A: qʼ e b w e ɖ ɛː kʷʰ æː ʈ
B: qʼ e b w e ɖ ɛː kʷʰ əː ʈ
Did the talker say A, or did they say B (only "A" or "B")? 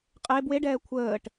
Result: B